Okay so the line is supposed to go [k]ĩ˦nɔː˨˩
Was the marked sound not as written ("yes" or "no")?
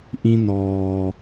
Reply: yes